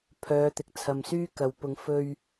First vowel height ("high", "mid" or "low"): mid